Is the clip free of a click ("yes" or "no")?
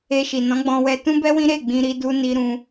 yes